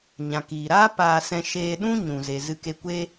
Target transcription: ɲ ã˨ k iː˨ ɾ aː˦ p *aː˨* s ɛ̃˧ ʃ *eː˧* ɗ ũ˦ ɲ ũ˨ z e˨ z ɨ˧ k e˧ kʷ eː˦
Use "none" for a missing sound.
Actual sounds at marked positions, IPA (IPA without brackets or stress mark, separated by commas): aː˧, eː˧